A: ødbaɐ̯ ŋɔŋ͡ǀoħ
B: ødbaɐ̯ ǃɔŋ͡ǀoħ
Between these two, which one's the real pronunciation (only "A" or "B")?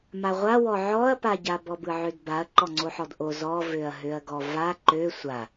B